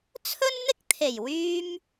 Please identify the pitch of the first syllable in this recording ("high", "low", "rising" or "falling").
high